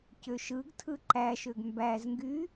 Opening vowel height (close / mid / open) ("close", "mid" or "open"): mid